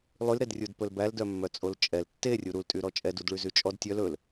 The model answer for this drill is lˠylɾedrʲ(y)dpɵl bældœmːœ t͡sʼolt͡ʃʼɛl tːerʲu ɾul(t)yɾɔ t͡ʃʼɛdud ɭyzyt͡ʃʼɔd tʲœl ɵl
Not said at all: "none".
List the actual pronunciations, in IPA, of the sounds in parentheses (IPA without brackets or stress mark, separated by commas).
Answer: u, tʼ